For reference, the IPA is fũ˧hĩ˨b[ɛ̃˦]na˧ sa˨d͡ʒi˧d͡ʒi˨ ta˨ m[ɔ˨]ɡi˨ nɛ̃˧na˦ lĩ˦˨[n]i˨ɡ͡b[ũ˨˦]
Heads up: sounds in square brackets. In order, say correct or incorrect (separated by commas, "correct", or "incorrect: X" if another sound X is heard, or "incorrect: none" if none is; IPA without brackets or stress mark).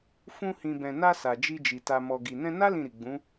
incorrect: ɛ̃˨, correct, incorrect: ɾ, correct